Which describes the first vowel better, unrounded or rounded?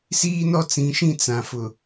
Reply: unrounded